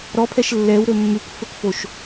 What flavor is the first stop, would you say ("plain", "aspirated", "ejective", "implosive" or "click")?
aspirated